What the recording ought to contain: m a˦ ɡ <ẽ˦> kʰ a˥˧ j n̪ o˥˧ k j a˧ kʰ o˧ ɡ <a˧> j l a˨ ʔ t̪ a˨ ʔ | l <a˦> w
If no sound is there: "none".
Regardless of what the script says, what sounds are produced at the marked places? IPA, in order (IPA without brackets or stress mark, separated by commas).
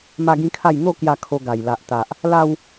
ĩ˦, a˨˩, a˦